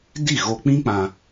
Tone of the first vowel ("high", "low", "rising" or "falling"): falling